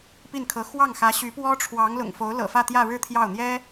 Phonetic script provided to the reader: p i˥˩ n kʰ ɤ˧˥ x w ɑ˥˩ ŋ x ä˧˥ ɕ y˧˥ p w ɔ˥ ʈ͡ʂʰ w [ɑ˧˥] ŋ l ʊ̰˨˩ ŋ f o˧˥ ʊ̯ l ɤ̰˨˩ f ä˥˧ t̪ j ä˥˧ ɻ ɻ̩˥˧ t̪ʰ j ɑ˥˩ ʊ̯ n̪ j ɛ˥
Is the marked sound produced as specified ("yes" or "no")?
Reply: yes